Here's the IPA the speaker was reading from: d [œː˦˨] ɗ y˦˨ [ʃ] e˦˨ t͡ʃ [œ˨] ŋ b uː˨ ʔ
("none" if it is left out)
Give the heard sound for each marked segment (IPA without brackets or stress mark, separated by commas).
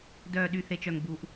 œː˦˨, θ, œ˨